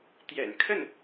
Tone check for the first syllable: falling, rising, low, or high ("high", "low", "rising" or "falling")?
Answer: low